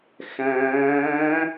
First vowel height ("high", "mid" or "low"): low